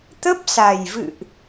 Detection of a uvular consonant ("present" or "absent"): absent